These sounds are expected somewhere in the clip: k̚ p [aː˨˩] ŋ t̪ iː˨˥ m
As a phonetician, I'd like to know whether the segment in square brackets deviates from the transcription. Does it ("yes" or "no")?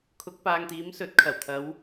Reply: yes